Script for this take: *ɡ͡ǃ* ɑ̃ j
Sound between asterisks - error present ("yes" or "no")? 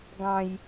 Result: yes